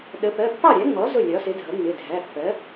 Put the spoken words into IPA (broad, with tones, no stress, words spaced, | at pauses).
ɗə˩˥ pɜ˩˧˩pːɑ˥˩ɾʲæ˩˥ŋ͡mɔ˩˥ zʊ˥˩ lʲɒ˩˥sɪ˩˥dʱʌ˩˥ ŋ͡mɪ˩˧˩dʱæ˩˧˩pːɜ˩˥